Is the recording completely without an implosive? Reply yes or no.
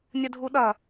no